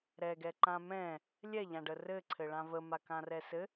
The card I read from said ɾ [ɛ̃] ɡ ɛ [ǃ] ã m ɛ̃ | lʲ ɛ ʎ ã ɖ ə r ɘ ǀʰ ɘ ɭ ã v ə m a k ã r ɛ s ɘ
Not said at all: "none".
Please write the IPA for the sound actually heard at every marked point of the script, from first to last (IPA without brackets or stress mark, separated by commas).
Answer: ɛ, ǃ